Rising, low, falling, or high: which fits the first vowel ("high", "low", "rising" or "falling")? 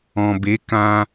low